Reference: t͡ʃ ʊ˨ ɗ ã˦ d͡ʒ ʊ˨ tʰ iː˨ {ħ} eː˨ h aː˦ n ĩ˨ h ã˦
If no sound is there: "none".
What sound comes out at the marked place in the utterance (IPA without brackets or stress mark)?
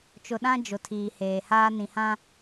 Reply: h